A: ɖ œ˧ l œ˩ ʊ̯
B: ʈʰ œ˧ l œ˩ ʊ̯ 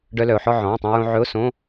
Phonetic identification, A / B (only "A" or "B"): A